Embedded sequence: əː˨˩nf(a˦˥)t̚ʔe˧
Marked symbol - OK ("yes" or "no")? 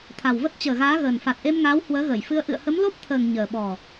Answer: no